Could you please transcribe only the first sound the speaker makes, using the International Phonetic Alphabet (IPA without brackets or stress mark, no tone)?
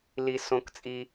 l